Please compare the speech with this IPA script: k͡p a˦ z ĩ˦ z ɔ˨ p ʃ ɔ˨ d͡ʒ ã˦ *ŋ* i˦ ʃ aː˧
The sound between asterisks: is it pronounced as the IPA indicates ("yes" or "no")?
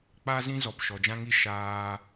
yes